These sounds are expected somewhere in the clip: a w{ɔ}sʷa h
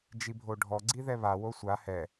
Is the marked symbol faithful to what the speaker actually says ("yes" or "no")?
no